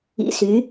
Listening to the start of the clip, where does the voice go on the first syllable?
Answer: low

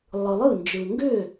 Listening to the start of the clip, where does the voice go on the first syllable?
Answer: low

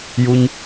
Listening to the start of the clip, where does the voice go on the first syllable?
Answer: high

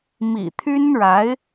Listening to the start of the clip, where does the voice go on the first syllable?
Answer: low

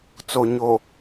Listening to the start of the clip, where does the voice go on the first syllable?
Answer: low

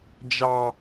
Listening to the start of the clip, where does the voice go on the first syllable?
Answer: high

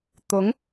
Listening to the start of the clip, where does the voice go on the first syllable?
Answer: rising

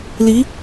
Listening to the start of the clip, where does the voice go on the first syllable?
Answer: rising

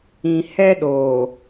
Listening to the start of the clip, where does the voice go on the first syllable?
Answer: low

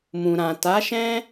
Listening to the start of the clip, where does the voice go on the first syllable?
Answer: low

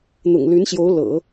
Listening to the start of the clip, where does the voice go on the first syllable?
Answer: low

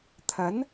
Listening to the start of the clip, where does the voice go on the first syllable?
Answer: rising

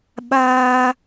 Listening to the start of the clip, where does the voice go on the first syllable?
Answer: high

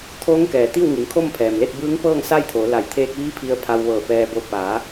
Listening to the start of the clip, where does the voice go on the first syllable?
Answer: rising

